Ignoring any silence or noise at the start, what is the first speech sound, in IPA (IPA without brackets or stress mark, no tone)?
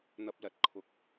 n̪